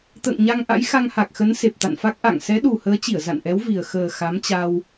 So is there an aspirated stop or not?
no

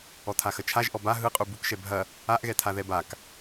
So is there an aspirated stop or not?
yes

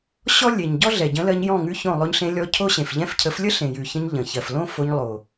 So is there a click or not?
no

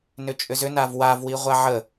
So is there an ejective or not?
yes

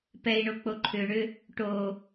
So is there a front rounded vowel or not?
yes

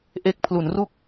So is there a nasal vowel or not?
no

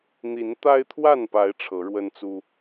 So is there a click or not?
no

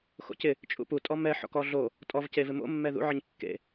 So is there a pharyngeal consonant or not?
yes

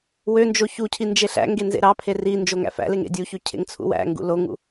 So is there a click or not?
no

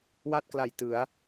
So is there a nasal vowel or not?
no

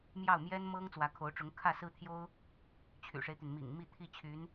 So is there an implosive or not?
no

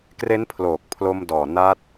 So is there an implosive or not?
no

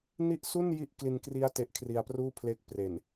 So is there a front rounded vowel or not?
no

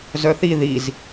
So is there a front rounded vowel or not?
yes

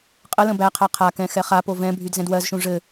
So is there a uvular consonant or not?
yes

